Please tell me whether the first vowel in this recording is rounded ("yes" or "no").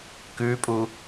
yes